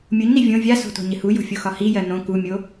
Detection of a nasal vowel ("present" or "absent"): present